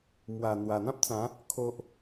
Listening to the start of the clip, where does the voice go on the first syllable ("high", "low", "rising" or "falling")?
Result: low